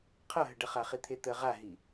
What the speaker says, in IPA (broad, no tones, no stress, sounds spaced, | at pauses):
qʰ ʌ ɦ ə ɖ ə χ a χ i t̪ʰ e t̪ ə ʁ a ɦ i